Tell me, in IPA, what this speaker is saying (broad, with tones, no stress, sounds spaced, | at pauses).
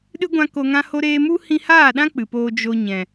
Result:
ɗ ɨ˦ ɡʷ ã˧ k o˧ ŋ ã˦ h o˦ ɾ eː˦ m u˦ h ĩ˧ h aː˦˨ ɗ ã˦ k͡p ɨ˨ p oː˧ d͡ʒ o˧ ɲ ɛ̃˨